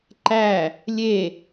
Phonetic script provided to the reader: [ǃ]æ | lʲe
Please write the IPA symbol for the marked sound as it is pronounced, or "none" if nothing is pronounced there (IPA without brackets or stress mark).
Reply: ǃ